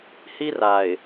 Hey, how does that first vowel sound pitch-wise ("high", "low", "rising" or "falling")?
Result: high